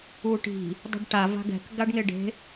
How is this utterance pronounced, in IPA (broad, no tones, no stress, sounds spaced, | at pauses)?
u ʈ i̤ | dˤ i̤ ɖ ʈ a v a̤ ɡ ɛ̤ k ɡ a ɖ ŋ e ɖ e̤